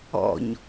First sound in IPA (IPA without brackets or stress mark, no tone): ɔ̰